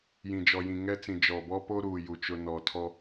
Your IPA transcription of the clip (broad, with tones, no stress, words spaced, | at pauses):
jĩ˨d͡ʒɔ˨jĩ˨ ŋɛ˦ t͡sĩ˨ d͡ʒɔ˨bɔ˦po˦ɾuː˨ ju˨t͡ʃʊ˦ nɔ˨tʰɔ˦